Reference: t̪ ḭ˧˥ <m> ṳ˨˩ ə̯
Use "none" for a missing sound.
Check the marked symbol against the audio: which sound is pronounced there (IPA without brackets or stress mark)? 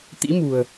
m